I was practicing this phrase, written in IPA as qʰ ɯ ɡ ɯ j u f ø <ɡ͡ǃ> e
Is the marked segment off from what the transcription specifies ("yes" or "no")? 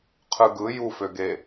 yes